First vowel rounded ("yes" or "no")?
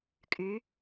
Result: yes